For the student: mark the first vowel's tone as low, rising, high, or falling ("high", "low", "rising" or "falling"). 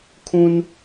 high